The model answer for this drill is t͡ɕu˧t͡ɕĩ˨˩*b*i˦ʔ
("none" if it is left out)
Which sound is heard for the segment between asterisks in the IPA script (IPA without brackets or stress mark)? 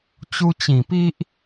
p